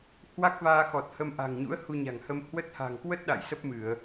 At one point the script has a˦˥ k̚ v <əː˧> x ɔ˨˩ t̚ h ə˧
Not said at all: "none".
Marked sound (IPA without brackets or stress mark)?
aː˧